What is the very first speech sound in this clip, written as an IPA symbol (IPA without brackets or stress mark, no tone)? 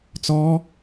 t͡s